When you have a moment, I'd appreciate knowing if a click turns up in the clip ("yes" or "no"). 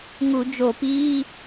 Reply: no